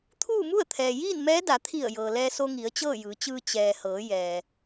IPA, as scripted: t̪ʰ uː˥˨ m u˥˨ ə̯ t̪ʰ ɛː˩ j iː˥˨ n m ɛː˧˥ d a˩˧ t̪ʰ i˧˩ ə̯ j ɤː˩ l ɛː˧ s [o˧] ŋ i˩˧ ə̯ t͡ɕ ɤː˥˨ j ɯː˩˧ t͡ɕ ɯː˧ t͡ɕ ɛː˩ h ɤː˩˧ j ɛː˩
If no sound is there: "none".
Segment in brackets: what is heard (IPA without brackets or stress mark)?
o˧